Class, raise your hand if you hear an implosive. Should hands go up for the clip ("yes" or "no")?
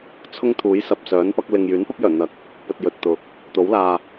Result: no